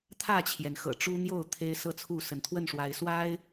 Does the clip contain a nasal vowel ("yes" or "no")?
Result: no